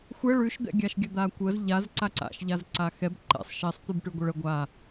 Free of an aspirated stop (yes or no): yes